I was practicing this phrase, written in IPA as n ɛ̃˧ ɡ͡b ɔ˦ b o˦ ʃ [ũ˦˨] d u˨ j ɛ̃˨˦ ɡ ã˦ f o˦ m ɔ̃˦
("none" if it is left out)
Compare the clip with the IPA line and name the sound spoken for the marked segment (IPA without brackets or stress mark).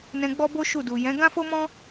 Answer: u˦˨